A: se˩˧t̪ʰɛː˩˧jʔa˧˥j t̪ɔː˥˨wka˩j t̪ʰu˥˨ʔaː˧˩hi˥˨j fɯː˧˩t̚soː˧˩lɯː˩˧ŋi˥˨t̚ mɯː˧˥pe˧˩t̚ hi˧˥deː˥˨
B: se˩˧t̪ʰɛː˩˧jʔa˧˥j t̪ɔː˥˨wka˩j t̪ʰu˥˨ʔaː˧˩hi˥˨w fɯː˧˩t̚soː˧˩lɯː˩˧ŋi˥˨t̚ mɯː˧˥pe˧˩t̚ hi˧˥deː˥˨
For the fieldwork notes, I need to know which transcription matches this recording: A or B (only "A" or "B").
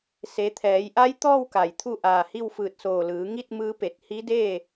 B